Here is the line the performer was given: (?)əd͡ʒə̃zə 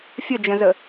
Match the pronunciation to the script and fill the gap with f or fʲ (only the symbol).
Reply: fʲ